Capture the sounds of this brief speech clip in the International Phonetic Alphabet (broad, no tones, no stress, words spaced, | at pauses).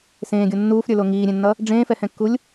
sẽːɡʲo nːuːfɾʲə˞lo ŋiːɾʲẽnːʌ | ɖ͡ʐẽːfɛhɛ̃kːulʲ